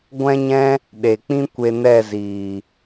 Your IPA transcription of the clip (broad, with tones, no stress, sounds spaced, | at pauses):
ɡʷ ɛ̃˦ ɲ ɛ̃˦ | ɗ e˨ k͡p ĩ˦ kʷ e˧ n ɛ˦˨ z iː˨